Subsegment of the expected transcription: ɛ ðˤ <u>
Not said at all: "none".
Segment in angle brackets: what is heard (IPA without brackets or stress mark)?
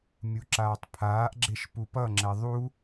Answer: u